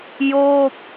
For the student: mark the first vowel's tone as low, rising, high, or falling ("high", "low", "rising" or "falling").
falling